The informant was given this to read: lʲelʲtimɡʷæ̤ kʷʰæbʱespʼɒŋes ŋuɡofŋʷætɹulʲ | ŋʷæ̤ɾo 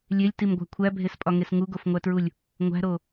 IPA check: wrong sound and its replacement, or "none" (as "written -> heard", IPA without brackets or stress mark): none